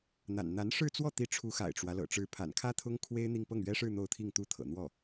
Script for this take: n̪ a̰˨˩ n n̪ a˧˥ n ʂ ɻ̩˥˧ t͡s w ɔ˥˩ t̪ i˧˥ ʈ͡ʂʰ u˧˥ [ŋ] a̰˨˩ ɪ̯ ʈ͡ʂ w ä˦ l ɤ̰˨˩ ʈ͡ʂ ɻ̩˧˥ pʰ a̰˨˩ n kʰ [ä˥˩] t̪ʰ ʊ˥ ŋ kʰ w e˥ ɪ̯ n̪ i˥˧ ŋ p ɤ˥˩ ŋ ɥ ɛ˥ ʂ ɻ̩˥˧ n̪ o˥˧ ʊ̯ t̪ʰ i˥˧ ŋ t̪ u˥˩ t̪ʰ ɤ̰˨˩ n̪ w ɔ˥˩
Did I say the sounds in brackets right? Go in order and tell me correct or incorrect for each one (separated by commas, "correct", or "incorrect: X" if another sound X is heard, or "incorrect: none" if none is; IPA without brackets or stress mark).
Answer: incorrect: x, incorrect: ä˥